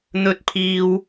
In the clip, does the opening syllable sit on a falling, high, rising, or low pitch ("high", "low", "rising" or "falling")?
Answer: high